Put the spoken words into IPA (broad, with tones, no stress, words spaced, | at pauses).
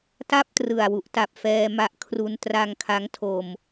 ta˥˩p̚ trɯ˨˩a̯ wu˨˩ʔta˨˩p̚ fɛː˧ma˦˥ʔkʰru˧n tra˧ŋkʰa˦˥ŋtʰo˧m